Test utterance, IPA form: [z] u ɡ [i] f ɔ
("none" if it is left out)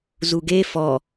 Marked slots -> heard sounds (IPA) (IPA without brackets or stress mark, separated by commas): z, e